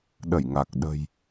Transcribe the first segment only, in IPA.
ɗ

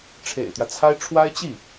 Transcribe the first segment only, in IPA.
ʈ͡ʂʰ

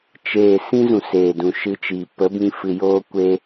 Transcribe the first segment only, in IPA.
t͡ʃ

